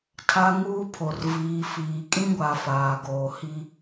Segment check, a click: absent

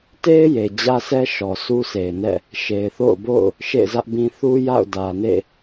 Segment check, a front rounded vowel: absent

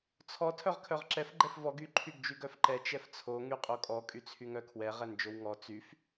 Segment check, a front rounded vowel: present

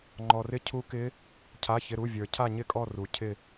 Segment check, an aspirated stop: present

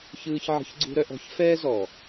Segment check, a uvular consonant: absent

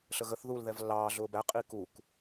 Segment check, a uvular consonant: present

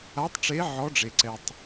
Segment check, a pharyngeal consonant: present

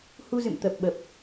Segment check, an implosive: present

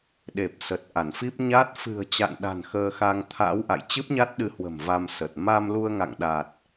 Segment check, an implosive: present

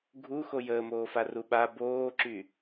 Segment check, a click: present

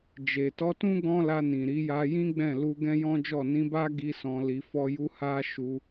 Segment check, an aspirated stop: absent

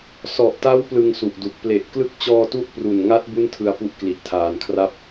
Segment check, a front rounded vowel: absent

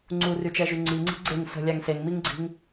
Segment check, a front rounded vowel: present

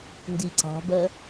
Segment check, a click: present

